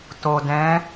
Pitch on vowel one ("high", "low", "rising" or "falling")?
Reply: low